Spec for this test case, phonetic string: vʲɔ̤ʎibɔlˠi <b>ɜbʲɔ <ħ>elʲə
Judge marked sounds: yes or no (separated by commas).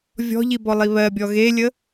no, no